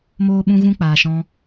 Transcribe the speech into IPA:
moː˦ɓũ˦ ɣũ˦k͡paː˨ʃɔ̃˧

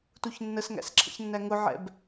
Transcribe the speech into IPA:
tuçnːəsŋæ̰s ǁʰə̰çnːæŋʊʕɛ̰b

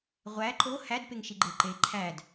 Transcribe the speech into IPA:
ʁʷæ ǃo hæd peŋʃiɡ͡ǃeǃe ǃʰæd

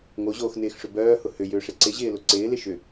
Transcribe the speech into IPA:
ŋoʑoːxnɪːxʂʏ bœːhʊ hʏjʏːʂɪ ǀɪʑɪːlʊ ǀɪːlɪ ʃʏ

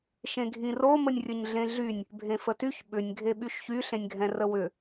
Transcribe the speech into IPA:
ʃẽɡʱĩro mənʲrʲəɲɮẽɮynʲ | bʱẽfətyç ɓʏnʲ ɡʱeɓyʃçy ɬẽnʲɡʱɛ̃rəwʏ

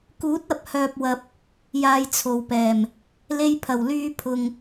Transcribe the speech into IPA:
kuː˨˥t̚ɐ˨p̚hœː˨p̚wɐ˨p̚ | jaː˧jt͡sʰo˨wpɛː˨˩m | le˧jpʰɐ˨˩wlyː˧ pʰʊ˨ŋ

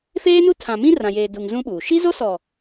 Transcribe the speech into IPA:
feː˦nu˦tʰã˨mĩ˦ rã˨jeː˨du˨ŋ zũ˦ ɓuː˨ ʃi˦zo˦sɔ˨

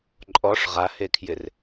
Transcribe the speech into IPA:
ǃʼɔʂ ʁahekʰjɪr

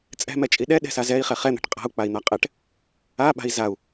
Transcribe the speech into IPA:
t͡sʼɛ̤mɛt͡ʃʼi ɗɛɗɛ̤sa zɛi̯χɛ χɛn̪ɛ̤ʈ qʼa̤u̯k͡pai̯n̪a qʼɛʈ | aɓa̤i̯ zau̯

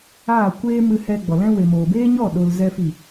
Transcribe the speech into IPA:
aː˦˨kʷeː˦ mɨ˧hɛ˧ ɡ͡bɔ˨lɛ̃˦ we˨moː˨ beː˦ɲɔ˦˨ ɗo˧lzɛ˦fi˦˨

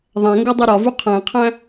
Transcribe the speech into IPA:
ðˤæ̃ŋɡodˤi ɾɒvu qʰæ̃qʰæ̃

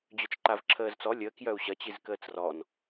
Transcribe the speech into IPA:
d͡ʑœt͡ʃǃavǁʰəːzt͡sɔ lʲəːkjœu̯ ɕɐt͡ɕiz kəːt͡srɔn

